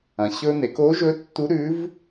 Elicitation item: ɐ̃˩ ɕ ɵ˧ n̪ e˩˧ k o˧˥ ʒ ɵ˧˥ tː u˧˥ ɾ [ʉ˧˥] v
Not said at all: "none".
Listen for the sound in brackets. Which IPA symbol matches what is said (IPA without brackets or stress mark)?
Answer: ʉ˧˥